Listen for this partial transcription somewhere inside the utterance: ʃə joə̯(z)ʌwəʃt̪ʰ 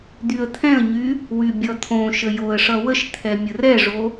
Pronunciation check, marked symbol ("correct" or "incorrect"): incorrect